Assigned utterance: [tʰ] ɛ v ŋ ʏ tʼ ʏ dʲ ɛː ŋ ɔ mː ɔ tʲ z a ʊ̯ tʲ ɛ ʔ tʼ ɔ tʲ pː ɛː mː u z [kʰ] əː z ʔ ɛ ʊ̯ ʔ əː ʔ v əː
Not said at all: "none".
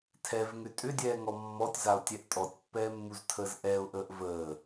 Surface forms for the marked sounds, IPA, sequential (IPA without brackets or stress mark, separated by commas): tʰ, tʰ